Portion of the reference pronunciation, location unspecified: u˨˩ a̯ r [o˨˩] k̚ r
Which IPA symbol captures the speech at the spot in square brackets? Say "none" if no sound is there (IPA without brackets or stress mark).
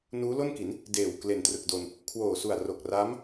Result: o˨˩